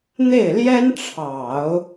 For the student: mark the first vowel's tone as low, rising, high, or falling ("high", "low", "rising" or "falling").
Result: falling